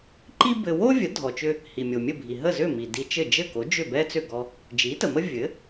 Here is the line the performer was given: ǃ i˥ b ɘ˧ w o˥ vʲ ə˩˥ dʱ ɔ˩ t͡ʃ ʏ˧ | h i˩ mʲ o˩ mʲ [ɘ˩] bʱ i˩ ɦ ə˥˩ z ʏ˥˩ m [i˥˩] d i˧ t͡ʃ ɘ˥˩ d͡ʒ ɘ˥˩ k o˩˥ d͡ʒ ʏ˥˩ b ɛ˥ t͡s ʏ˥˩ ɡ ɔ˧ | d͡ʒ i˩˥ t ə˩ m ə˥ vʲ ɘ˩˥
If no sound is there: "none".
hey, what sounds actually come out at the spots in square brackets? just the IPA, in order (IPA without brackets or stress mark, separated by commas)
ɘ˥˩, i˩